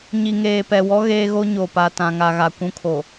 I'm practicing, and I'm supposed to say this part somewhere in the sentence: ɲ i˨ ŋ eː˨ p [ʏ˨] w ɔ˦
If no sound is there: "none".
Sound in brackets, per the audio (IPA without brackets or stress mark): ɛ˨